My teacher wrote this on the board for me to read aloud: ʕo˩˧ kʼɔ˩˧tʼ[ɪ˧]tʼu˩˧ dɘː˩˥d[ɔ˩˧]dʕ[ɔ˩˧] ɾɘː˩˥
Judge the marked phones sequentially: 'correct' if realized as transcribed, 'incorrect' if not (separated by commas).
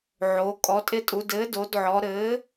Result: correct, incorrect, correct